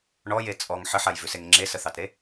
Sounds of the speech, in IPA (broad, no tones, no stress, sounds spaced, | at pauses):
ɳ ɔ j e t͡sʼ ɔ ŋ ħ ə ħ a j v ʉ s e ŋ ŋ͡ǁ e s ə θ ɑ t ɾ e